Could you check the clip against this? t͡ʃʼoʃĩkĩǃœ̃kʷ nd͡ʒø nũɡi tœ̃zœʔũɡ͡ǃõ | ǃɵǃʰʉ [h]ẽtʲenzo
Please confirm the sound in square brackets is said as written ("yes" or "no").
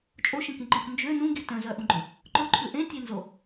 no